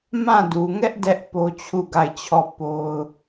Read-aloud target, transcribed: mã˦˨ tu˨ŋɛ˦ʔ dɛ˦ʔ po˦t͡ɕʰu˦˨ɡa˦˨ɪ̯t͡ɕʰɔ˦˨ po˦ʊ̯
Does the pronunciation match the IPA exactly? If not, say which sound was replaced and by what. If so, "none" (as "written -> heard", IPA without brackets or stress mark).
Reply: t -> d